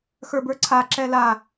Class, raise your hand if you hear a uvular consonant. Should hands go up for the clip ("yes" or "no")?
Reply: no